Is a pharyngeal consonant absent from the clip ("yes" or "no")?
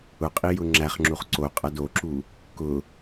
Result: yes